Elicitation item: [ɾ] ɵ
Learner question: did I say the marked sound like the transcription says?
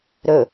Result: yes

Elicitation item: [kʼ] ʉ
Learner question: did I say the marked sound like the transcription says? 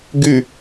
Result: no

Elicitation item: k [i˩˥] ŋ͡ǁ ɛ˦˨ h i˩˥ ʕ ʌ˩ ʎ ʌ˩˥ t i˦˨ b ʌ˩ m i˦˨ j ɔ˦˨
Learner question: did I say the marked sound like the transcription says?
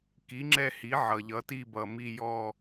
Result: yes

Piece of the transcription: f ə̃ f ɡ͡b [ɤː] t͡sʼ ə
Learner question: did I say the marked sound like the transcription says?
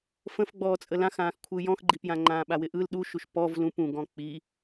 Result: no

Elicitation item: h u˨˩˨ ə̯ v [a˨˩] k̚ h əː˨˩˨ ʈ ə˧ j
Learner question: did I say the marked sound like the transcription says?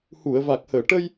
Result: yes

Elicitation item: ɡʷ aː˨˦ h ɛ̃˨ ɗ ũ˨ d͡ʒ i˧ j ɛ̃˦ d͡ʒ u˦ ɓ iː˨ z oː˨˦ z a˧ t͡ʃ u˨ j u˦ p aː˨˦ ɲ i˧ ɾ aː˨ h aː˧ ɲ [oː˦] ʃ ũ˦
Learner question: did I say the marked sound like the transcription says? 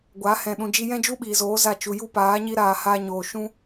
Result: no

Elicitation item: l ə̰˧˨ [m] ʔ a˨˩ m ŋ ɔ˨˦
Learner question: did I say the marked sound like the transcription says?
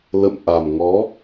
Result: yes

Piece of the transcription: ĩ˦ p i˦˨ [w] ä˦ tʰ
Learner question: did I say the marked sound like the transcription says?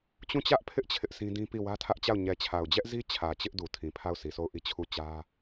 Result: yes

